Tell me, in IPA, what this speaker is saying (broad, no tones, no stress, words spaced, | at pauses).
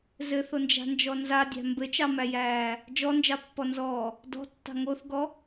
zɘθond͡ʒa̤nd͡ʒɔ nzadʲæ̤ mbɘt͡ʃɑmæjæː | d͡ʒɔnd͡ʒɑpːɔnzɔː | dɔ̤tːɑ̤ ŋoθɡɔ